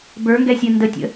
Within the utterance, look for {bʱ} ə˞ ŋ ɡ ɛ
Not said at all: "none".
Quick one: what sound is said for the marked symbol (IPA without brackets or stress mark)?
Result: b